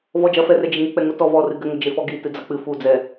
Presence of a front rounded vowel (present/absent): absent